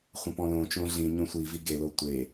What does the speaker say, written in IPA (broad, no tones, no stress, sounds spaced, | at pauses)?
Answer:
χʷ ɐ̃ p ɔ̃ l õ t͡ʃ õ ɮ ĩ ɲ õ sʷ i v i ɡ e l o tʷ e